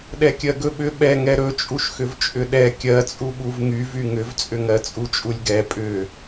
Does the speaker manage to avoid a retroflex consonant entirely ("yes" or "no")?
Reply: yes